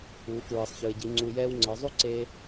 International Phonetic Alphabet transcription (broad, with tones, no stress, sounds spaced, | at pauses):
uː˩˧ k ɹ ɯː˩ sˤ ç ɯː˩ e̯ ɟ i˩˧ ŋ͡ǀ u˩ j ɛː˧ w ŋ͡ǀ ɤ˩˧ zˤ u˥ ǀ eː˧